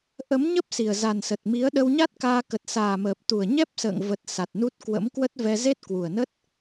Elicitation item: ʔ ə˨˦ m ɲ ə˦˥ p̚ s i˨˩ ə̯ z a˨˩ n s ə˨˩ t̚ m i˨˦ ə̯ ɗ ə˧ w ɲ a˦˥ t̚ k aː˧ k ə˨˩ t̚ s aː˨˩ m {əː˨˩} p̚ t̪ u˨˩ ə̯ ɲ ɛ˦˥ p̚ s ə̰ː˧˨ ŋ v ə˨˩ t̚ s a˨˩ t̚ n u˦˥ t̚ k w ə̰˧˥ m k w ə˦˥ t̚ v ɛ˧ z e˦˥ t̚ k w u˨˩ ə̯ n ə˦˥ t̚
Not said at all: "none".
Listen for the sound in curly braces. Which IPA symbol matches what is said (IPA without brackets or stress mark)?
əː˨˩